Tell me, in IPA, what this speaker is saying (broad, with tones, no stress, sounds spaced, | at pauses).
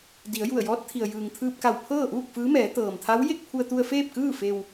d i˩˧ ə̯ j u˧˩ ə̯ j ɔː˧˥ t̚ t̪ʰ i˩ ə̯ j ɯː˩ ŋ t̪ʰ ɯː˧ p̚ k a˧˩ w pʰ ɤː˥˨ ʔ uː˥˨ k̚ f ɯː˧˥ m ɛː˩˧ t̪ ɤː˩ m t̪ʰ a˧˥ w j e˥˨ k̚ pʰ u˧ ə̯ t̪ u˧ ə̯ f eː˥˨ p̚ k ɯː˥˨ f e˧ w